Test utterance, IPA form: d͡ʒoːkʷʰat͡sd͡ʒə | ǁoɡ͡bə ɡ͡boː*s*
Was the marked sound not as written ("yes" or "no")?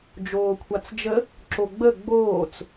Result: yes